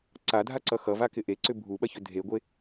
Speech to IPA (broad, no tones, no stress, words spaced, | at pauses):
ǀadʱaǀʌ xʌvakɪ ʔeǀʏ bʱuɓɐçʏ dʱeɡʷe